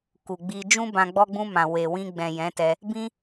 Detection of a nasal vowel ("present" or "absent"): present